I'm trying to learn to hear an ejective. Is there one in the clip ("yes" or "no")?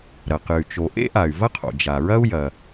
no